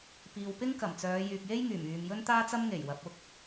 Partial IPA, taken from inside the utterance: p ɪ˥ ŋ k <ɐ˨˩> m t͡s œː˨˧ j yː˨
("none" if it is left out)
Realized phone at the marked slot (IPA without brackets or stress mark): ɐ˨˩